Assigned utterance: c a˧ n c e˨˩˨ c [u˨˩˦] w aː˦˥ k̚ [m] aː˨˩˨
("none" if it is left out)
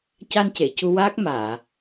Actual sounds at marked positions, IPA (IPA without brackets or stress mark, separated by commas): u˧, m